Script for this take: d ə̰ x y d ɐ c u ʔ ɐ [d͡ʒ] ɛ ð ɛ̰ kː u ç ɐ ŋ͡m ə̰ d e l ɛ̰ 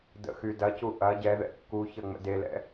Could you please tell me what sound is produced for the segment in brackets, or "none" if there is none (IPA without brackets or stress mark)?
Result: ɟ